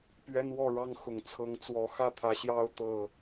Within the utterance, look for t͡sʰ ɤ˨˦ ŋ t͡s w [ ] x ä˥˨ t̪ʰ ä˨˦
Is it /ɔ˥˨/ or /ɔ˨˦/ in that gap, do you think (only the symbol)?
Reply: ɔ˨˦